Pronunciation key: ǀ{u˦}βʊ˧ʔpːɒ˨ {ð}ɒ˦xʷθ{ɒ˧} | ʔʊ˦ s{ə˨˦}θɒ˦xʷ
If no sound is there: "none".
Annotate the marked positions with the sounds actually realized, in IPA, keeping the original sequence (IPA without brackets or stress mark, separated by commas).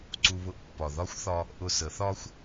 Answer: u˧, ð, ɒ˧, ə˨˦